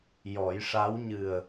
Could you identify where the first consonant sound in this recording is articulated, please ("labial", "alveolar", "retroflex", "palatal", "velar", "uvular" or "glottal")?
palatal